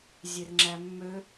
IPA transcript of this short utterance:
zʲerŋ͡ǁæmːø

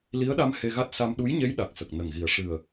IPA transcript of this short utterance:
li˧˥ə̯ɗa˧m he˧ɣa˦˥t̚ sa˧m ɗu˧˥jɲe˧˥j ɗa˨˩k̚sə˨˩k̚ nə˨˩ŋɣi˨˩ə̯ ʂɨ˨˩ə̯

